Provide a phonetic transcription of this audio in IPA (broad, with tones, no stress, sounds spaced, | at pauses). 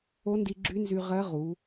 o˧˥ n d i˧ ɡ͡ǁ y˧˥ n z y˧ ʁ ɜ˧˥ ʁ u˩˧